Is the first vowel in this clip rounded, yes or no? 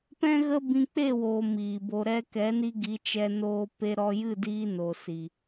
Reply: no